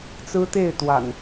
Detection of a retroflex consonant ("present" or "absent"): absent